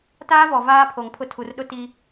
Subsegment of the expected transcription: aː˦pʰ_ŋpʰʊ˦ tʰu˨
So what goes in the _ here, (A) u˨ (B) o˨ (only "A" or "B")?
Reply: B